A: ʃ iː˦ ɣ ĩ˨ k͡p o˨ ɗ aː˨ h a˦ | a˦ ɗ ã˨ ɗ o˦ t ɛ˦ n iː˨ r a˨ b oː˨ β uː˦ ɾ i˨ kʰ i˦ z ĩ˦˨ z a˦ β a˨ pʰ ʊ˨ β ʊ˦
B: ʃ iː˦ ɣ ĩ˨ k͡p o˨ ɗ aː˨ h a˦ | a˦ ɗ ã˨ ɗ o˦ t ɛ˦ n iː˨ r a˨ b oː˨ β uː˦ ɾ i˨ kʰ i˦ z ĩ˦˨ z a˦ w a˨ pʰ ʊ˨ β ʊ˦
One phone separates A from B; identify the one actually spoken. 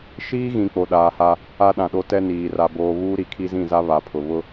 A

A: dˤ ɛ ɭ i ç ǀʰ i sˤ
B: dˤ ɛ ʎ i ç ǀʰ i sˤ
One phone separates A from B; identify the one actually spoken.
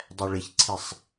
A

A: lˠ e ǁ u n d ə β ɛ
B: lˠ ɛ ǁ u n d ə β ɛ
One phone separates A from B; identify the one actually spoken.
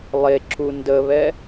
A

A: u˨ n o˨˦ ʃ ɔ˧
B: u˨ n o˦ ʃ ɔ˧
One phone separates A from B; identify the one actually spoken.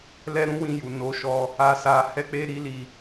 A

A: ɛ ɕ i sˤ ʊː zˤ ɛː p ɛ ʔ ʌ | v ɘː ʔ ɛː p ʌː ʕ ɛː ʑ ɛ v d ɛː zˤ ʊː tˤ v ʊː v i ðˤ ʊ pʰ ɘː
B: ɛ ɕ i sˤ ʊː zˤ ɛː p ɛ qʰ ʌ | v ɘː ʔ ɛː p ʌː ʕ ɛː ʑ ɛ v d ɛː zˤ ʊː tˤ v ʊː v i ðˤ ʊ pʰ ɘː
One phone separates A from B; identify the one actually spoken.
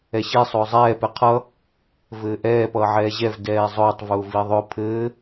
B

